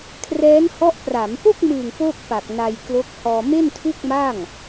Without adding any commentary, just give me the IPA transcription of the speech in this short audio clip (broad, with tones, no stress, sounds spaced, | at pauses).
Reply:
kʰ r ɛː˦˥ n h ɔ˦˥ ʔ p r a˩˦ m p o˥˩ k̚ m ɯ˨˩ ŋ p o˥˩ k̚ p a˨˩ k̚ n a˧ j k l o˦˥ k̚ h ɔː˧ m e˥˩ n tʰ u˥˩ k̚ m a˥˩ ŋ